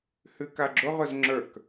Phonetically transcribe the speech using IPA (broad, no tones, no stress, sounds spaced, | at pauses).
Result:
h ʉ k a ɡ͡ǁ ʊ ʁ ʊ z ŋ͡ǁ ə˞ k